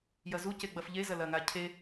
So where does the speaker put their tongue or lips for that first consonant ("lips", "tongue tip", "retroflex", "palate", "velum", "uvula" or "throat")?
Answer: palate